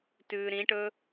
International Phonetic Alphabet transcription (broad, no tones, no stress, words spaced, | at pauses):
tʉːɾĩʈɵ